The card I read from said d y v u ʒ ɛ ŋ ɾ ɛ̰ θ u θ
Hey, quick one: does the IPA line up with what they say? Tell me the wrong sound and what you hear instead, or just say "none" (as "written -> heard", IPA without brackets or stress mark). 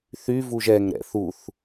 d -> θ